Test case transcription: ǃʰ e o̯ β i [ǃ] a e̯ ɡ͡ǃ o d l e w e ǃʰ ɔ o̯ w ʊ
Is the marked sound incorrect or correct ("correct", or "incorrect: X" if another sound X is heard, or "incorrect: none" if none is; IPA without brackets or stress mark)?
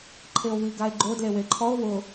incorrect: ɡ